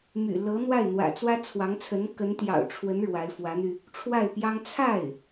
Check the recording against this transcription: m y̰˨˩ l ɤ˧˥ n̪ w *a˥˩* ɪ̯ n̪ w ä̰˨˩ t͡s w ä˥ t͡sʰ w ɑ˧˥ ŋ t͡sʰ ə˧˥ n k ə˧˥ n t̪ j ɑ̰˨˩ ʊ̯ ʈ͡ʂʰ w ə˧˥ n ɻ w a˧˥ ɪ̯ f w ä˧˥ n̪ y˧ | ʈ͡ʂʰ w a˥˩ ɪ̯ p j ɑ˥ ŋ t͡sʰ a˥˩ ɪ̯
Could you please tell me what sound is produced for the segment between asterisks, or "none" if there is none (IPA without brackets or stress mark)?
a˥˩